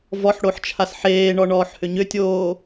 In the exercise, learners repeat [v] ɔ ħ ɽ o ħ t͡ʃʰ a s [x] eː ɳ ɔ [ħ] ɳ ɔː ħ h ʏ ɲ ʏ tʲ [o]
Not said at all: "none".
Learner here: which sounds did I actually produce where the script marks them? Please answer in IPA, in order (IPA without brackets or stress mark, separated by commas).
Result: v, ħ, none, oː